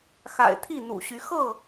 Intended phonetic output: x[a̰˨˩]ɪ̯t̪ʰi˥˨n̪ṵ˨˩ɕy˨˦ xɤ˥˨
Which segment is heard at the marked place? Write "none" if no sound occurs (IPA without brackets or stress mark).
a̰˨˩